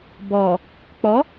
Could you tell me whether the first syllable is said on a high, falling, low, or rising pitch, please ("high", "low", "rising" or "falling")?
low